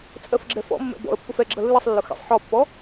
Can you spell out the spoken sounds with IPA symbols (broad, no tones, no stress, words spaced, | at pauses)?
t͡sʼɜfɡ͡ǁɛfɔ̰mːɛ̰ bɔ̰ə̯ pːʊfɛɡ͡ǁʌ lːɨsˤlːʊ xḛsˤ ħɔpːɔ